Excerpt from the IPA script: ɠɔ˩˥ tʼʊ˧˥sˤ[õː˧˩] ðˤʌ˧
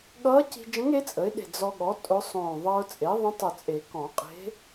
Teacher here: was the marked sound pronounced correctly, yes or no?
yes